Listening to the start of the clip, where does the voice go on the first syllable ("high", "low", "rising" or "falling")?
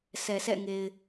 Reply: low